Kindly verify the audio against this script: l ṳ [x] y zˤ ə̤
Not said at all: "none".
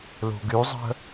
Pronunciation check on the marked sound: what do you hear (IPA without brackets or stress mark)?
ɡ